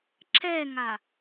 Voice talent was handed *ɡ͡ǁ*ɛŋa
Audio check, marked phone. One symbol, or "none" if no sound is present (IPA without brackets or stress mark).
ǁ